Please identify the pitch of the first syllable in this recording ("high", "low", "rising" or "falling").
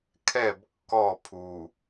falling